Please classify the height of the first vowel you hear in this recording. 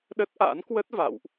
mid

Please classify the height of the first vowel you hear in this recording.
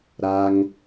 low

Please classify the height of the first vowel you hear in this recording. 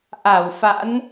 low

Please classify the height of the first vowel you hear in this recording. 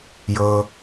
mid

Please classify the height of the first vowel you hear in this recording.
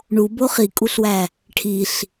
high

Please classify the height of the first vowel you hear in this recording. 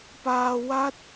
low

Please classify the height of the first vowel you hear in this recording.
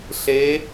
mid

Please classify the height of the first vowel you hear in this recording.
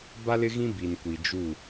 low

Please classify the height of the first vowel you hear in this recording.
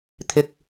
high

